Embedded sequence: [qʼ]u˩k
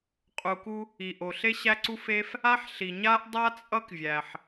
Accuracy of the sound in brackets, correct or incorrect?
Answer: correct